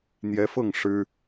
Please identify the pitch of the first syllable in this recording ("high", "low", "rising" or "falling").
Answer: rising